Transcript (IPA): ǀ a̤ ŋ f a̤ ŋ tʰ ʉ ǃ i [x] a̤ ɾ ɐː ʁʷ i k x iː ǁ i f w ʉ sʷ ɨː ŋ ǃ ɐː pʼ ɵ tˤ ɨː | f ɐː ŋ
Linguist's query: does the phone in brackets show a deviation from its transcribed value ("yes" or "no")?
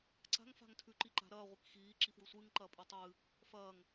yes